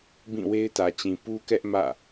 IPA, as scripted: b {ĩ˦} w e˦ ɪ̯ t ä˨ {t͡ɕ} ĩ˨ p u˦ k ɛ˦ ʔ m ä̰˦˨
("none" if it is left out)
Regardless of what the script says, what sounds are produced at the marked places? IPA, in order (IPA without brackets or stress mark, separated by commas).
ĩ˦˨, t͡ɕ